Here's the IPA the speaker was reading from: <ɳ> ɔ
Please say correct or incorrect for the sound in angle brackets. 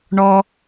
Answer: correct